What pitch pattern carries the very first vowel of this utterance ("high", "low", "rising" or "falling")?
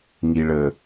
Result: low